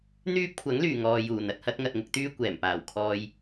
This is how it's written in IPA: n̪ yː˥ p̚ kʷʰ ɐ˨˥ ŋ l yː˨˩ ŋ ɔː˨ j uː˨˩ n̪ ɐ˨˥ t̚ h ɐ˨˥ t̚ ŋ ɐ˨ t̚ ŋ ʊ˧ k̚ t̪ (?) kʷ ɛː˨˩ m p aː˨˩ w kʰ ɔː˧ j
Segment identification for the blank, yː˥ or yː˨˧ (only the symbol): yː˥